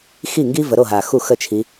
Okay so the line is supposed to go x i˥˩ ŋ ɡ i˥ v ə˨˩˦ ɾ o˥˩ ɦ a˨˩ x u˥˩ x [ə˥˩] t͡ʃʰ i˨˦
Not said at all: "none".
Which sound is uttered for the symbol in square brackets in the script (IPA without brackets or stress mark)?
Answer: ə˥˩